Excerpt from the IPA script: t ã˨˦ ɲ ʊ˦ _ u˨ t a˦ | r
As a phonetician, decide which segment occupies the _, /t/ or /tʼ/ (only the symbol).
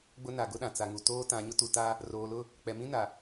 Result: t